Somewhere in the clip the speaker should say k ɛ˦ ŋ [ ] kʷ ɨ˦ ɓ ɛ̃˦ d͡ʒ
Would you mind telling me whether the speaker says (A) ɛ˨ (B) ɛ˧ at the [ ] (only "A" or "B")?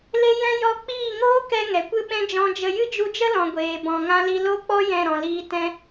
A